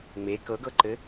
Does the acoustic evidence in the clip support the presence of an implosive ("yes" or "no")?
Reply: no